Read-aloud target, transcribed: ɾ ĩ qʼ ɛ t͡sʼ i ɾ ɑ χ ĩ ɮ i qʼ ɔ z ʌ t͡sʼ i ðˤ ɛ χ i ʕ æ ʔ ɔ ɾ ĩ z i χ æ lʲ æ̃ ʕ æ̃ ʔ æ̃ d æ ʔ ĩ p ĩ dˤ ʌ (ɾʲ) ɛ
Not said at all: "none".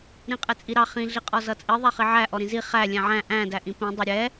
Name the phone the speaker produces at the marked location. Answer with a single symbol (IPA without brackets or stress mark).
ɾʲ